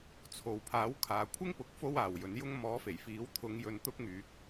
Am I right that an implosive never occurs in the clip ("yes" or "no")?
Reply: yes